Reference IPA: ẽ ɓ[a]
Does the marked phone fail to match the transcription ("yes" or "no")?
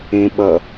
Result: yes